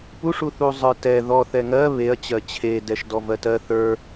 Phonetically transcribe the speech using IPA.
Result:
p u ʂ u θ u zˤ ə˞ t ɛ ð ɔ θ ɛ ŋ ɜ β e ɐ̯ t͡ɕ ɜ t͡ɕʰ e d ɛ ʃ d ɔ v ɜ t ɜ θ ə˞

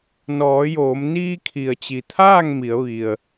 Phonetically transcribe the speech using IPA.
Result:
n ɔː˩˧ j oː˩˧ m n iː˧ kʰ i˩ ə̯ t͡ɕ i˩ t̪ʰ aː˥˨ ŋ m i˩˧ ə̯ ʋ i˩ ə̯

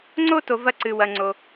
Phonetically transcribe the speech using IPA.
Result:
ŋ͡ǀ o˦ t o˨ v ɐ˦ ǀ ɨ˨ w ɐ˨ ŋ͡ǀ o˨

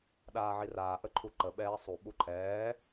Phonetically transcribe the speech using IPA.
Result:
ɗ aː ʕ i r aː ʔ ə ǃʰ u ǃ ə ɓ ɛː sˤ u ɓ u ǃʰ ɛː

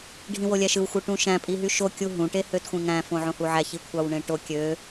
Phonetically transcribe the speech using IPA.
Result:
ɖʱ ĩ w o lʲ æ ʃ ɯ w xʷ ɯ ʈ ũ ʃ æ̃ pʼ i ɦ y ʃ o kʲ u ɦ ũ ʈ e h ø t xʷ ẽ ŋ æ̃ f õ ʕ õ h u ʕ æ ç i kʷʰ ɑ w ɳ ẽ ʈ o kʲ ø

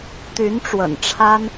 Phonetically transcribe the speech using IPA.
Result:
t̪ y˧˥ n ʈ͡ʂ w ə̰˨˩ n ʈ͡ʂʰ a˥ n

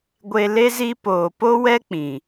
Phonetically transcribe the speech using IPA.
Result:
ɡʷ e˧ l e˦ z i˦ p oː˨ p o˦ w ɛ˦ k͡p ĩ˨

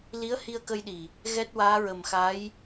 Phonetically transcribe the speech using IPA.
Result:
l i˧˥ ə̯ h i˧ ə̯ k ə˧ j ɗ i˨˩ | ɣ ɛ˦˥ t̚ w aː˧˥ ɹ ə˨˩ m x a˧˥ j

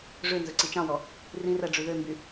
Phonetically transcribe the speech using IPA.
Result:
ʐ ø n z ɵ ǀ i t͡ʃ ɑ̃ w ɔ | r ĩ r æ ɖ͡ʐ ʉ ð ø m b y

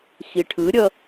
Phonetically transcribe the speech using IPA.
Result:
x i ʈʰ ɯ ɾʲ ʌ

